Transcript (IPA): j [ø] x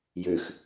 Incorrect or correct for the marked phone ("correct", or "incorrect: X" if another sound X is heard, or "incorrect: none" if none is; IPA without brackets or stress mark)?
correct